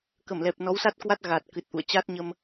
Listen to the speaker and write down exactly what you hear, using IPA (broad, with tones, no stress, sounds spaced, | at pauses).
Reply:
k ə˧˩ m l ɛ˨˩ p̚ n ɔ˨˦ w s a˦˥ t̚ k w a˦˥ t̚ ɣ a˨˩ t̚ k ɨ˨˩ t̚ ʔ ṵ˧˨ ə̯ t͡ɕ a˦˥ t̚ ɲ ə˧ m